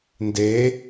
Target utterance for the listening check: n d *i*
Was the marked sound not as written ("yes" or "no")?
yes